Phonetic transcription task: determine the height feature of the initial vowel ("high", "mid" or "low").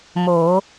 mid